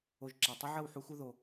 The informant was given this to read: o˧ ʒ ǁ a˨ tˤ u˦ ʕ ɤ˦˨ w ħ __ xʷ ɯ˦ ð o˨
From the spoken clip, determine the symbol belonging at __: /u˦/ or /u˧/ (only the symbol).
u˦